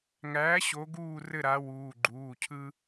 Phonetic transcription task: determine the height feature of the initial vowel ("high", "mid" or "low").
low